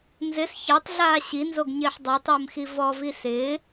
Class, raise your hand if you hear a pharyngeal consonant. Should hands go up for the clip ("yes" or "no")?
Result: yes